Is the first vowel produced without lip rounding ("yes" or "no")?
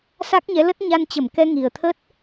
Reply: yes